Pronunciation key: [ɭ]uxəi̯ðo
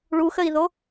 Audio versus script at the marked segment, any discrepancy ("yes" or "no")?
no